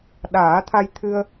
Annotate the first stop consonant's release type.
implosive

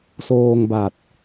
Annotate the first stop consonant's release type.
plain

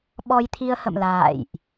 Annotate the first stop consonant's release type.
implosive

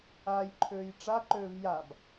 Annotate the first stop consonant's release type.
click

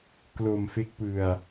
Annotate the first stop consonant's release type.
plain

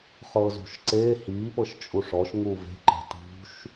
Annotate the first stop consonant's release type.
click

